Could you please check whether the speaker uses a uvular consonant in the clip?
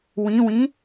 no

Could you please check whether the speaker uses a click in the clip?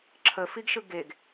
yes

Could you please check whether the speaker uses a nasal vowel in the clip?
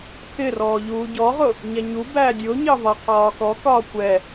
no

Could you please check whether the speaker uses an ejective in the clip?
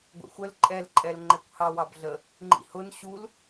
yes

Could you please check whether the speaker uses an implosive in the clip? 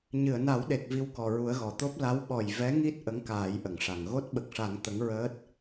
yes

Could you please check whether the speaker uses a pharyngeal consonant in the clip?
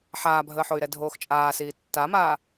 yes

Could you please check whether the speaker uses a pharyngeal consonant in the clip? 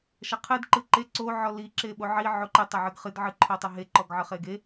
yes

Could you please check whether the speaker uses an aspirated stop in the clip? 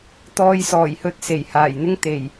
no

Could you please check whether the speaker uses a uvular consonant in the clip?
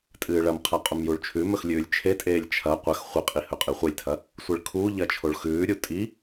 yes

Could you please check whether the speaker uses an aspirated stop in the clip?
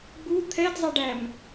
yes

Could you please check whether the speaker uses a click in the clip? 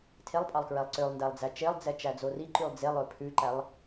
yes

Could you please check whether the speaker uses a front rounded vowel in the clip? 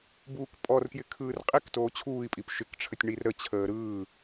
no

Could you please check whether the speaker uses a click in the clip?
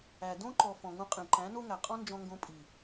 yes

